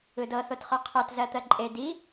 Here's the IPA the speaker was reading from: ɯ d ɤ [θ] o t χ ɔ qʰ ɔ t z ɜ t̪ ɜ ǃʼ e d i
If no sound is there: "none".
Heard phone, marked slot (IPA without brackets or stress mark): θ